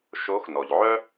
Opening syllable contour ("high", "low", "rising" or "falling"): rising